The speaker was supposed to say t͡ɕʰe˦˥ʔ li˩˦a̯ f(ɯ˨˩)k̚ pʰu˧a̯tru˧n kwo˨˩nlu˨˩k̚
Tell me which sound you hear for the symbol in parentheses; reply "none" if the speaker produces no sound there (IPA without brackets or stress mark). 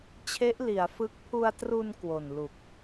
ɯ˦˥